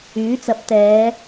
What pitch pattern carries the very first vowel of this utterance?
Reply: rising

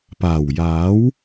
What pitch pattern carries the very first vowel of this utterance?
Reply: low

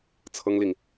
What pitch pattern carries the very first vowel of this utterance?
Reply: high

